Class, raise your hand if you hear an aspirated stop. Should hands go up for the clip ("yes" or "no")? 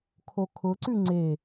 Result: yes